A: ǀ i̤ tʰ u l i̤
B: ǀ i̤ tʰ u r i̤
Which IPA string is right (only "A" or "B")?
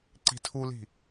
A